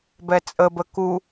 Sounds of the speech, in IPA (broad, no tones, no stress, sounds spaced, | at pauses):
b ɛ t͡sʼ ə b ə k u